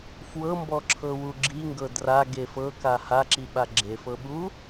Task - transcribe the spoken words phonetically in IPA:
fwɤmbɔǁʰɤwu ɡ͡ǁiŋɡɤ draɡe fɤka haǁiɓa ɡ͡ǁefɤɓu

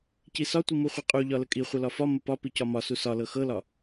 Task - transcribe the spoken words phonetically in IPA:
cisɒ tʷimuχʷiqʼu ʎɒləkʼi χʷɤlɒfɒ məpɒ picɒmɒ susɒlɤ xɤlɒ

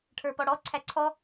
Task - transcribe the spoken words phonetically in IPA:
ʈʰə˞pɔɽɔ ǀʰæǀʰɔ

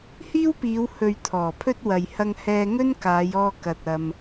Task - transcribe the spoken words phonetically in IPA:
hiː˥wpiː˨˧w hɵ˨ɥ t̪ʰɔː˨˩pʰɵ˥t̚ wɐ˨j hɐ˧ŋhɛː˧ ŋɵ˥n kaː˨˧jɔː˧ kɐ˨t̚ɐ˨m

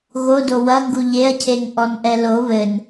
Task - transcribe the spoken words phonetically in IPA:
ɣodo wɐŋɡu ʎeɐ̯cʰeŋ ʔɔnʔɛlo βɘn

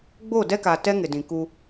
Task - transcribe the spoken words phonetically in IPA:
ɡ͡bo˦˨dɛ˦ka˨ tɛ˦ŋɪ˨dĩ˨ ku˦

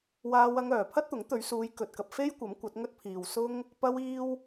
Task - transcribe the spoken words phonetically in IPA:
waː˧wɐ˧ŋœː˨˩ pʰɐ˥t̚t̪ʊ˨˥ŋt̪ɵ˨˧ɥsuː˨˧j kɵ˨t̚kɐ˨p̚ fe˥jkʷɐ˨˥m kʷɐ˨˥t̚ŋɵ˥t̚pʰiː˨w sʊ˥ŋ | pɐ˥wiː˥w

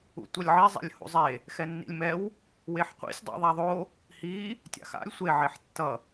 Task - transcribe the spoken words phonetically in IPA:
ṵtʷʌlʲʕi zˤa̰lʲhṵzˤe | xɛnːḭlʲmɛw | weħqʷḭsʲ dˤḭðˤaðˤo | hi | tʲa̰xa̰lʲ sʷe ʕeħtːʌ

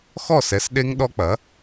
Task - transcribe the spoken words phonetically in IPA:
xɔ˥˨sɛ˩˥sɗe˦˥ŋ ɗɔ˦˥ k͡pɐ˩˥

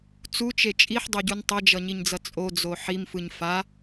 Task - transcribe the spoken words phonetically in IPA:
t͡sut͡ʃe t͡ʃʼiħdˤoɟun tˤʌd͡ʒʌɲiɲd͡zʌ t͡sʼod͡zo ħimfɯɲ fa

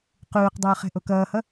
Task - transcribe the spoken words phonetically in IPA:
quːqdˤʊː χɛ̤ʔokʌːhʌ

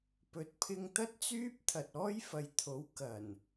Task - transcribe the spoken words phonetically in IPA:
pɵ˨t̚pʰɪ˧ŋ t̪ɐ˥t̚t͡syː˥p̚ t̪ʰɐ˨t̚ɔː˥jfɐ˨jt̪ʰo˨˥w kɐ˨˩n

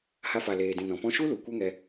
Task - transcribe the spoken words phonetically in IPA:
ha˧fa˨leː˨dĩ˨ nɔ̃˨pɔ̃˦ ʃu˦lu˨ kʷɛ˦ŋɛ˧

